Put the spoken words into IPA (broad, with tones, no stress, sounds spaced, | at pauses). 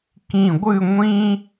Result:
k ĩ˧˩ ɡʷ ɨ˥˧ ŋʷ ĩ˥